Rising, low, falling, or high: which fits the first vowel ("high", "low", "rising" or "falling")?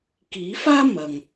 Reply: rising